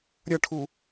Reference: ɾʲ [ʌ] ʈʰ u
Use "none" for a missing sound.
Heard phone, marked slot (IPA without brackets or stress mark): ʌ